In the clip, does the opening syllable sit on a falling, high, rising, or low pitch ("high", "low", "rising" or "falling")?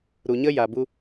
low